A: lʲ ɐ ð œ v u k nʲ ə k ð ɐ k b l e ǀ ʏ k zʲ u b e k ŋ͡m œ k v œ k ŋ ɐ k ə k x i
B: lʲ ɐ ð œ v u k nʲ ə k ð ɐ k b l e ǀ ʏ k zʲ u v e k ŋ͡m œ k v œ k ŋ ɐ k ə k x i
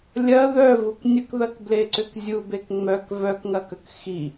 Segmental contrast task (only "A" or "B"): A